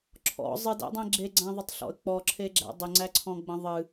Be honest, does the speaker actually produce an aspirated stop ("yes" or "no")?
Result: yes